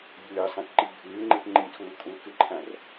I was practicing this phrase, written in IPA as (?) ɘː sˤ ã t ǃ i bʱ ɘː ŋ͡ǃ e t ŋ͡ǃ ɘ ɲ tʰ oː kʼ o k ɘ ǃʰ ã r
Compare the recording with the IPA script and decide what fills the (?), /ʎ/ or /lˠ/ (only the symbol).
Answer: ʎ